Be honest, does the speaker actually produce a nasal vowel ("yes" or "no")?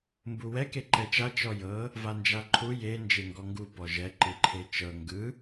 no